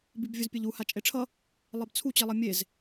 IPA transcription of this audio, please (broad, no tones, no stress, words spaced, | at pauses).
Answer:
bibvʲuzpʲeʎu hat͡ʃʼeʈ͡ʂʰʌ | lˠɛbt͡sʰu t͡ɕilˠʌmʲez